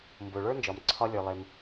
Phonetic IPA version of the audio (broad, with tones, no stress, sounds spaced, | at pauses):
m b o˩ ɭ ə˞˥ n d͡ʒ ɒ˩ m ǀʰ ɒ˥ lʲ ə˞˩ lˠ e˩ m